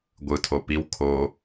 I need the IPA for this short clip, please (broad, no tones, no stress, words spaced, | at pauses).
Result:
ɡʷɯtʰo piw kʰo